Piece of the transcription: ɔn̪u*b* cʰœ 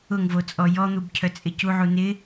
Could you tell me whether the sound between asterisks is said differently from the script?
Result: no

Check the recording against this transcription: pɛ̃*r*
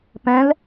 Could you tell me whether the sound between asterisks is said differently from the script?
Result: yes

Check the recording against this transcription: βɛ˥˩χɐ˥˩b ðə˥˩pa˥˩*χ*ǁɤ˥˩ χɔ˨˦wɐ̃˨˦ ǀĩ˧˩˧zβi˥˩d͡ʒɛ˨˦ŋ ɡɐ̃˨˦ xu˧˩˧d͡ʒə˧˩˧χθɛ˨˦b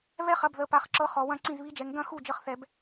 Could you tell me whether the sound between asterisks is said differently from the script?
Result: no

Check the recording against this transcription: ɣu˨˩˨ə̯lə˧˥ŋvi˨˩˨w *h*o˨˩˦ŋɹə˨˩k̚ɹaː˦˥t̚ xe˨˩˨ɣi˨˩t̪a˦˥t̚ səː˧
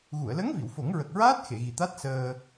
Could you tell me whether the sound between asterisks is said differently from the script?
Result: yes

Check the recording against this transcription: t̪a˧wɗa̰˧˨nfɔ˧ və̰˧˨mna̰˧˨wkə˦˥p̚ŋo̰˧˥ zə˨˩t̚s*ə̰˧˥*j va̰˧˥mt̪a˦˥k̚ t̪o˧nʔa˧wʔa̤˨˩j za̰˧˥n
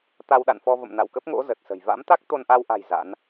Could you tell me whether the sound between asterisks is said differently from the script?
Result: yes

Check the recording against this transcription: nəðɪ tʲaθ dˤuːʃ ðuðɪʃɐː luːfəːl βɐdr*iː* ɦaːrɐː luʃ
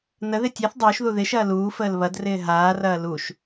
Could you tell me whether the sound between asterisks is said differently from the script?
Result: yes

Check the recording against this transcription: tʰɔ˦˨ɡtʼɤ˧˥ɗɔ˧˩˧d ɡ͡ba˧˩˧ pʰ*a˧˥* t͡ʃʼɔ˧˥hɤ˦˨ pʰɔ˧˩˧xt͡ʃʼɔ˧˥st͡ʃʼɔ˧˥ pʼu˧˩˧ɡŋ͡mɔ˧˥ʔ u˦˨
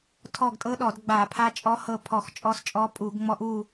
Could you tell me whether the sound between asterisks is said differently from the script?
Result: no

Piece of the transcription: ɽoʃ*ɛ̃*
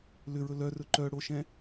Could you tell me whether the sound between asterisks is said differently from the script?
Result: no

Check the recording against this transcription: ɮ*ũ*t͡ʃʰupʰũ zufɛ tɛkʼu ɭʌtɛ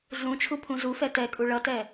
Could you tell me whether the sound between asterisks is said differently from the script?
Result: no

